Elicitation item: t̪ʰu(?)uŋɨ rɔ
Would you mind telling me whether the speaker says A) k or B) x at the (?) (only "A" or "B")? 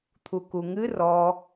A